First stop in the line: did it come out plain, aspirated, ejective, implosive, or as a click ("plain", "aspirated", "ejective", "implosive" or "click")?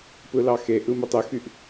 plain